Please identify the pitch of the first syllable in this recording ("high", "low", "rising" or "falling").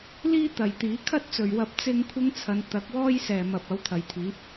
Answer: high